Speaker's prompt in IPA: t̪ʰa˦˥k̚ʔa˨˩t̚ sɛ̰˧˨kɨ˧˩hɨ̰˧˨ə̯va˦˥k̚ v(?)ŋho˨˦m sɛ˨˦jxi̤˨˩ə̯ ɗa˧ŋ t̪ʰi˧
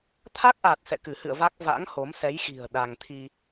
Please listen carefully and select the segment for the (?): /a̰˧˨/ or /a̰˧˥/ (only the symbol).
a̰˧˥